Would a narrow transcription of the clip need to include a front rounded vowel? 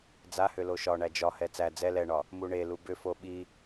yes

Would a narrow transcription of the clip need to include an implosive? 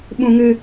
yes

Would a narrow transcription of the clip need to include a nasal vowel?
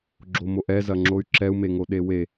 no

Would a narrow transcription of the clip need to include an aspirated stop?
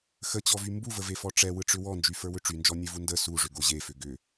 no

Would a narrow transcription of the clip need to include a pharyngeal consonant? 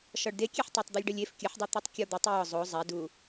yes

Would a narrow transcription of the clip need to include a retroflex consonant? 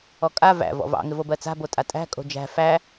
no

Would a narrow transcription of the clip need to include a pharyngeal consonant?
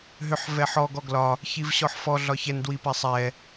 yes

